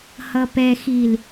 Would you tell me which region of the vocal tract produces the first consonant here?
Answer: throat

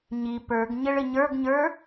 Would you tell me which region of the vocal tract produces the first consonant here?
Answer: palate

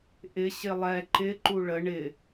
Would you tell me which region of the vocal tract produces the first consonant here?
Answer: throat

